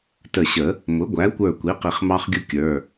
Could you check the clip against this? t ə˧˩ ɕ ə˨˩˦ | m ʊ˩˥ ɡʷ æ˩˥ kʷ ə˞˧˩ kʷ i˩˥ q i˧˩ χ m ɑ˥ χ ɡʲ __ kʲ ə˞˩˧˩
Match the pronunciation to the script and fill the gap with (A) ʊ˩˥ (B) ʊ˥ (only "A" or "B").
B